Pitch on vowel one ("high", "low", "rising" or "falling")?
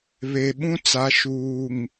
low